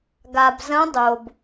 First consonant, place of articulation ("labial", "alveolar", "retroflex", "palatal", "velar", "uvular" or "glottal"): velar